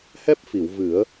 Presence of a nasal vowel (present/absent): absent